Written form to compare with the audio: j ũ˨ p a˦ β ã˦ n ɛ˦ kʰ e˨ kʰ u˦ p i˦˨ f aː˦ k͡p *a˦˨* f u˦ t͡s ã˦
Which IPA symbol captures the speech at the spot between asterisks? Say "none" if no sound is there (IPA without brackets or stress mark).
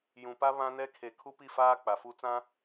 a˨